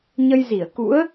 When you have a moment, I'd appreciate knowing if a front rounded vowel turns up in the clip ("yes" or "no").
no